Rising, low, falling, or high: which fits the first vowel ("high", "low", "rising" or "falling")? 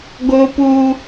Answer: high